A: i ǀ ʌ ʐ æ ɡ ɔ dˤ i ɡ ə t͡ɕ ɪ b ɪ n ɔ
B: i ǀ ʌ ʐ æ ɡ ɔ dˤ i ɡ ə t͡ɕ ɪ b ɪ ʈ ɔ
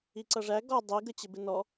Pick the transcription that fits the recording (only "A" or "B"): A